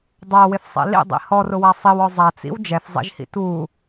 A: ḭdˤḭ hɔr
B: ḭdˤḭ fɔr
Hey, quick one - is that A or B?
A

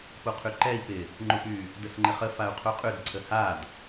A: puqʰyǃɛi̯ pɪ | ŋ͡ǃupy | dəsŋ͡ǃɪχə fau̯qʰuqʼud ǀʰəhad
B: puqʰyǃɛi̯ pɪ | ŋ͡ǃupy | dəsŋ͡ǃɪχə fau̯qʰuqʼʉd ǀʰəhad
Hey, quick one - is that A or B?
B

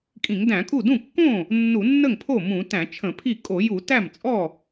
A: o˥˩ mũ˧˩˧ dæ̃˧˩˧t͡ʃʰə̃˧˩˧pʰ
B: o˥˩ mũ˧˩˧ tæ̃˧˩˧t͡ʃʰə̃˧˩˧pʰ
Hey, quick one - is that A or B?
B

